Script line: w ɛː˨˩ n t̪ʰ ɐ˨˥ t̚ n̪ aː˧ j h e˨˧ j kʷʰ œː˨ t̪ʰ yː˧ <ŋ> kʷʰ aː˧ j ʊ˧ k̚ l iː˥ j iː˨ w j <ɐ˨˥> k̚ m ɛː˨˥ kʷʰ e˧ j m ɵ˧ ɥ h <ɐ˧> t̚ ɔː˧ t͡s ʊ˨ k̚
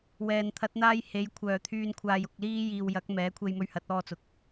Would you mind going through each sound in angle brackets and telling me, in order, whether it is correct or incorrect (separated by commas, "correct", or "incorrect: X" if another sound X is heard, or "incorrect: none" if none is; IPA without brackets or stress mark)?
incorrect: n, correct, incorrect: ɐ˨˥